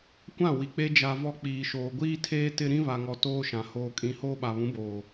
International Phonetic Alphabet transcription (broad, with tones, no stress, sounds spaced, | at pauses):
kʷ ã˦˨ w i˨ k͡p e˦ d͡ʒ a˨ v ɔ˨ k͡p iː˨ ʃ oː˨ ɡʷ iː˦ tʰ eː˦ t ɪ˦ ɾ ĩ˦ β a˨ ŋ ɔ˨ t oː˦ ʃ ã˨ h oː˨ kʼ ĩ˨ h oː˦ ɓ a˨ β ũ˨˦ b oː˨